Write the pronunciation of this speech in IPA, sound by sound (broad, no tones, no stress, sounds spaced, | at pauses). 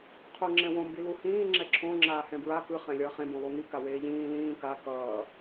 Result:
qʰ o ŋ͡ǁ ɛ̃ w õ m b i l u h ĩː ŋ͡ǁ ɛ ǁʰ õ ŋ͡ǁ aː h ɛ̃ b ɹ a k ɯ χ ɛ̃ lʲ ʌː χ ẽ b õ lˠ u ŋ i k a w eː ʎ ĩː l ĩː k a k ʌː